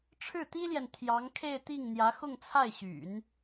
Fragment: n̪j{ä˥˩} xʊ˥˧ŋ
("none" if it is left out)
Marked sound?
ä˧˥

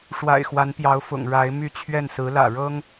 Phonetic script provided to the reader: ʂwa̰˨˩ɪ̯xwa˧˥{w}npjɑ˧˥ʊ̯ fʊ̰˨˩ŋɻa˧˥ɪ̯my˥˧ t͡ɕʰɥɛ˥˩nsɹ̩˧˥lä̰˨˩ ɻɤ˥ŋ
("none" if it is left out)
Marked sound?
none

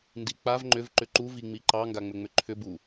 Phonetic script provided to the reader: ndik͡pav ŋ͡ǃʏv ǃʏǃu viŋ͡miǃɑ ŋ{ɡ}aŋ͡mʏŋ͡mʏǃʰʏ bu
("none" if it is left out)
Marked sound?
ɡ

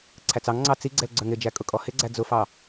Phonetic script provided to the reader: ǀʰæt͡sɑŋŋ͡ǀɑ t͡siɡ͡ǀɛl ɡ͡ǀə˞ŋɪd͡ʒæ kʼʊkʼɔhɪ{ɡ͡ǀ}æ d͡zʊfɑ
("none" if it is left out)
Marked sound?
ɡ͡ǀ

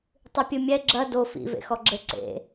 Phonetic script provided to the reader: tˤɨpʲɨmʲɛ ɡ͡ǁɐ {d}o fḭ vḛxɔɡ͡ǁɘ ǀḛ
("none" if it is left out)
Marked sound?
d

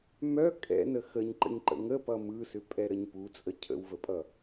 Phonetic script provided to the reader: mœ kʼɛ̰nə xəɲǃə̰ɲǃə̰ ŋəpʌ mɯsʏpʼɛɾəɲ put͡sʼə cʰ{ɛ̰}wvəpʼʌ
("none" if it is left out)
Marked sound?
ə̰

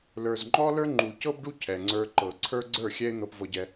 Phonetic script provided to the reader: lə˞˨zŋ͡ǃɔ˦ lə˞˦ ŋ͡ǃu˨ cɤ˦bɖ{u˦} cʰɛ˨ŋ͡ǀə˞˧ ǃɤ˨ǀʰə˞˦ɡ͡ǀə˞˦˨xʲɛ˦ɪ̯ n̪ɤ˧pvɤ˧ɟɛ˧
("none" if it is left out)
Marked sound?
u˦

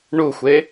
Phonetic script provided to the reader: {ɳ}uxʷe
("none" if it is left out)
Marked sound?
ɳ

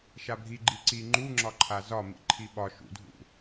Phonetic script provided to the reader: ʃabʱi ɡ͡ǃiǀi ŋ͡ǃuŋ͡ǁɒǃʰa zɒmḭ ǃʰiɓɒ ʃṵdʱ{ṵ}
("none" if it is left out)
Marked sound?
ṵ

